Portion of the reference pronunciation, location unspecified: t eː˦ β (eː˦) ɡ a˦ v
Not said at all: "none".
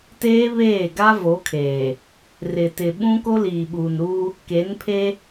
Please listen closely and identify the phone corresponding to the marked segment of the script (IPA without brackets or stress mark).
eː˦˨